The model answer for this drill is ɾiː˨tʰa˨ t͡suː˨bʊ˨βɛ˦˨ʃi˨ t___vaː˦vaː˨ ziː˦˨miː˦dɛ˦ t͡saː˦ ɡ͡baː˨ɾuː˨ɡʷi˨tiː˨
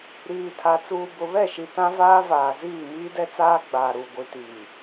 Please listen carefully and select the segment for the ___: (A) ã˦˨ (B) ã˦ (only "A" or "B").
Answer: B